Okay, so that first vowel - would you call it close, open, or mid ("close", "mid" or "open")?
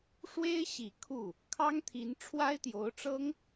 mid